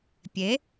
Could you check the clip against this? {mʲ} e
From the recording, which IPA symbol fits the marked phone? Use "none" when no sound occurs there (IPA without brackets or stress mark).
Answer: pʲ